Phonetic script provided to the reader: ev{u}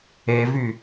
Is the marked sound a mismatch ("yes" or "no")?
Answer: yes